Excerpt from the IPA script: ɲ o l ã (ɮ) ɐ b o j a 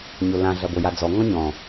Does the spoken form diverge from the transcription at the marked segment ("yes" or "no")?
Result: no